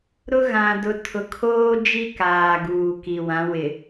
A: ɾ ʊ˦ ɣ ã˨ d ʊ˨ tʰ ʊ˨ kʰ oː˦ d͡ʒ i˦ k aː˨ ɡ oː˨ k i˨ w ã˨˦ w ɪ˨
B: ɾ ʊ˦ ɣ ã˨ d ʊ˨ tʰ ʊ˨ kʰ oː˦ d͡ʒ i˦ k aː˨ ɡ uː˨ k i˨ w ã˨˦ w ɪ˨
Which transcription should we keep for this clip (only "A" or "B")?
B